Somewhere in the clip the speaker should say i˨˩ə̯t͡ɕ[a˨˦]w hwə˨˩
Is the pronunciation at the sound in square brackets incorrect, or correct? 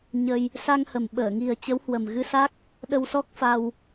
incorrect